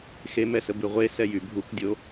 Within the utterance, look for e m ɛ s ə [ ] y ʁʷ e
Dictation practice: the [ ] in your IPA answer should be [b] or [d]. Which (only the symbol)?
b